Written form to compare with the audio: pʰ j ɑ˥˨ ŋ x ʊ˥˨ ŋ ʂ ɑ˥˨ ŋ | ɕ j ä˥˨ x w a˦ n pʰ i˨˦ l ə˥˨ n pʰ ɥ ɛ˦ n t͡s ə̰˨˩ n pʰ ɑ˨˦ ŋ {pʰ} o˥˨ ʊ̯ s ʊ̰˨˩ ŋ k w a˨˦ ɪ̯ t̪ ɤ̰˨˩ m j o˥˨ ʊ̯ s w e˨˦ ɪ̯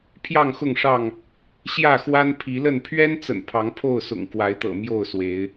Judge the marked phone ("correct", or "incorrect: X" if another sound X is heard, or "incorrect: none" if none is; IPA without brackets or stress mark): correct